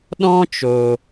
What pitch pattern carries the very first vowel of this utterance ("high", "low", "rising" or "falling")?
high